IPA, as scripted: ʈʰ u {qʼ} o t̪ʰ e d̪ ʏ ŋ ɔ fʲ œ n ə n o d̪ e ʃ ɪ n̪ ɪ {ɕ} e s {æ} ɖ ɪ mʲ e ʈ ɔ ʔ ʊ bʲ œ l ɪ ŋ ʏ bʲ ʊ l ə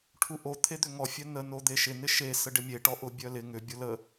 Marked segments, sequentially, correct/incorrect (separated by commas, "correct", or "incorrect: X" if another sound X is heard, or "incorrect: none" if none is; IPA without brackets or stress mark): incorrect: ʔ, incorrect: ʃ, incorrect: ə